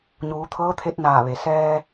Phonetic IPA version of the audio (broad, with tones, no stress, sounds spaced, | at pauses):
ɲ uː˩˧ t̪ʰ ɤː˧˥ t̪ʰ e˧˥ t̚ n aː˧˩ ʋ e˩ s ɛː˧